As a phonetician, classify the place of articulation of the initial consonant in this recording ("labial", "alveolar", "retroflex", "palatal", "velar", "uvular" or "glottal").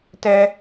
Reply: alveolar